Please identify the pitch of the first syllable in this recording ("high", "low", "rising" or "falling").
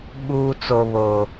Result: high